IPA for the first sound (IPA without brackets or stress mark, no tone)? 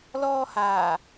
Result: l